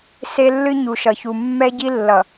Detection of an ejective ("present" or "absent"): absent